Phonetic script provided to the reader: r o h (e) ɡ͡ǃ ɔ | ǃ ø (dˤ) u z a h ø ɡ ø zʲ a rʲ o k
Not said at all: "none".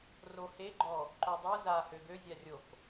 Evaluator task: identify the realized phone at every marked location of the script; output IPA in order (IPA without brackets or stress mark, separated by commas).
e, dˤ